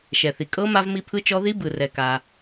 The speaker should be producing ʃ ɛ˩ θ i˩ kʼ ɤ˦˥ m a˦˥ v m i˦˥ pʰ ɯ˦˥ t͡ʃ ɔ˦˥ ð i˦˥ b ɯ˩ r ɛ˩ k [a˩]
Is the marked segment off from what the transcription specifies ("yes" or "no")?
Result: no